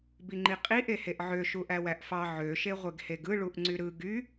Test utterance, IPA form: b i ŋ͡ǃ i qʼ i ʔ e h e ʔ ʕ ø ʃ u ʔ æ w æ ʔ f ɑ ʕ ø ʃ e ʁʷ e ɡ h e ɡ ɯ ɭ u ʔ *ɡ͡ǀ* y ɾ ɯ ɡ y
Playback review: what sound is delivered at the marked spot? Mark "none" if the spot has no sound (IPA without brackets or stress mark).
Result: ŋ͡ǀ